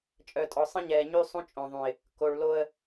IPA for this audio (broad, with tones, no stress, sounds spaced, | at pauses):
t͡ʃʼ œ˨ tʼ ɔ˨ sˤ ə̃˦ ɲ ɛː˨ ɲ y˦ sˤ ũ˦ t͡ʃʼ õ˨ ðˤ ũ˨ ɪ̯ | k o˨ ɭ l o˦ ə̯